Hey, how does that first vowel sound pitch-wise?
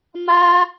high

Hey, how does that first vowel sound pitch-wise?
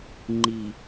low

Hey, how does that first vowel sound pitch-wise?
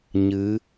rising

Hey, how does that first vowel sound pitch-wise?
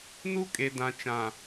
high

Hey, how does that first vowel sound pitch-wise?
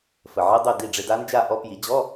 low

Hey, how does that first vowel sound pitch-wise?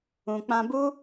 low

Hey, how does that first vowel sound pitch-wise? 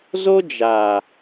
high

